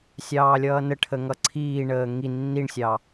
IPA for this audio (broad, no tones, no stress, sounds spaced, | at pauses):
sʲ ɑː lʲ ʌː n ə ʈʰ ə ŋ ʌ ǀʰ iː ɳ əː ŋ i nː i ɳ sʲ ɑ